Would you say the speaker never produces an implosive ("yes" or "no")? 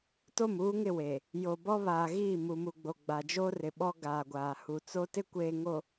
no